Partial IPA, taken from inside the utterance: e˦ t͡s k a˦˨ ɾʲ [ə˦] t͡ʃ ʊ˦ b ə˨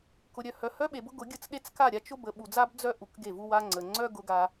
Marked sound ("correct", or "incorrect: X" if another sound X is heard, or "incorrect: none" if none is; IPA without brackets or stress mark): incorrect: a˦